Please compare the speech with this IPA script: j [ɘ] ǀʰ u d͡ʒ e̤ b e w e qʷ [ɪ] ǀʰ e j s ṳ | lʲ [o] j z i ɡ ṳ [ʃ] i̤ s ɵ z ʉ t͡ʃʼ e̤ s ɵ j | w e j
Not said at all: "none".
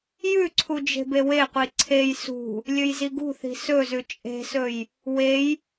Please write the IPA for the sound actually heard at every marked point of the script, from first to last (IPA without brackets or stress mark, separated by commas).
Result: ʉ, i, ɵ, θ